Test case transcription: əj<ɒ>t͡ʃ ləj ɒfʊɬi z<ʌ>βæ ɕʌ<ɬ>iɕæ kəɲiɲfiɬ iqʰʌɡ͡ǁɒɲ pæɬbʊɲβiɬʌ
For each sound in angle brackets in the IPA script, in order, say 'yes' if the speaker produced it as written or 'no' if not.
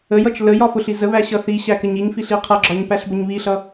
no, no, no

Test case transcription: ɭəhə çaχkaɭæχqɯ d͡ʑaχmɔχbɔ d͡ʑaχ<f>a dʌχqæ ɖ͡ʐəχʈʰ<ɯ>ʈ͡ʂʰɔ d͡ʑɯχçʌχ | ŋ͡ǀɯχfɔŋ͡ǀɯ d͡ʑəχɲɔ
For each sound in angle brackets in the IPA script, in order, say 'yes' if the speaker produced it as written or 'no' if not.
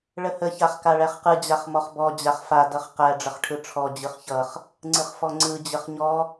yes, yes

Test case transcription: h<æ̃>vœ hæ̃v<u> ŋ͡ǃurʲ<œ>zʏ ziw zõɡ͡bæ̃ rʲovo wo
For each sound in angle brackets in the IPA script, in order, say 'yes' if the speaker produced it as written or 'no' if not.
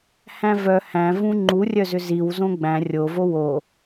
yes, no, yes

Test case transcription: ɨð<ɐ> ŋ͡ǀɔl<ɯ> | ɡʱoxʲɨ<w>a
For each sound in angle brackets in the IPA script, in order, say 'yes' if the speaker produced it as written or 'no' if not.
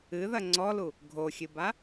yes, no, no

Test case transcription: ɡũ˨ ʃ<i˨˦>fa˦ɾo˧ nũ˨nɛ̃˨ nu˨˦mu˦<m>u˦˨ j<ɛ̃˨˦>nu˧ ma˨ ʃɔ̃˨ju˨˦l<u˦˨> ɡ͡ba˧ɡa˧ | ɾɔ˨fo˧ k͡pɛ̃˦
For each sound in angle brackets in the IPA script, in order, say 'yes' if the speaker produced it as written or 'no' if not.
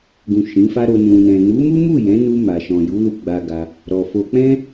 no, yes, yes, no

